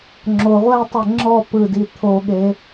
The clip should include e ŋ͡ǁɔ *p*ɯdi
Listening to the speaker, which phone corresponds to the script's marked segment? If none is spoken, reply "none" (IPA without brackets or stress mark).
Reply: p